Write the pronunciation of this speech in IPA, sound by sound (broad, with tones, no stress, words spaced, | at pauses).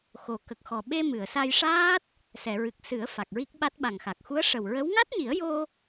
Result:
xo˨˩ kə˨˩k̚xɔ˨˩ɓe˧ mɨ˨˩˨ə̯sa˧jʂaː˦˥t̚ | sɛ˨˩˨ɹɨ˨˩k̚ sɨ˨˩˦ə̯ fa˨˩k̚ɹi˦˥k̚ɓa˦˥t̚ ɓa˨˩ŋxa˨˩k̚xu˧˥ə̯ ʂə˨˩wɹə˧˥w ŋa˦˥t̚ɲi˨˩˦ə̯jo˧